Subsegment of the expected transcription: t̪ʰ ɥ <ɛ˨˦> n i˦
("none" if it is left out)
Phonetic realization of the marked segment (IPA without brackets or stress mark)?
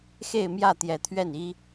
ɛ˥˨